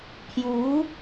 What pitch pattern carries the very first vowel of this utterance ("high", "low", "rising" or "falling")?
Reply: rising